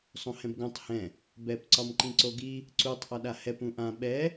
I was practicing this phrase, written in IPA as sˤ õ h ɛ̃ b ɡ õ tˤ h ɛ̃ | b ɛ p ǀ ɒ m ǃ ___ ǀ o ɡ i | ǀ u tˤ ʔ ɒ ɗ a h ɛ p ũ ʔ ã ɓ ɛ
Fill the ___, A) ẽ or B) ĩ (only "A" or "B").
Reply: B